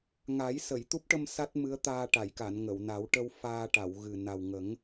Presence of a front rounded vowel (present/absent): absent